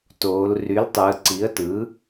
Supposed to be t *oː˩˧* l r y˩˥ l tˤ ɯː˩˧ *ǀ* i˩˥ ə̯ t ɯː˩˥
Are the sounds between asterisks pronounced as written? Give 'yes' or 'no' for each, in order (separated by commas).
yes, yes